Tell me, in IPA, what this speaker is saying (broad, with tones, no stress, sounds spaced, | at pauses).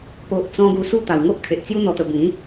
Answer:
p o˨ ʔ t͡s ɔ̃˧ ɡ u˧ s u˥˧ t̪ a˨˩ w ŋ o˦ ʔ kʰ e˨ ʔ t͡s j u˦ n̪ ɔ˧ t̪ ə˧ b ĩ˨˦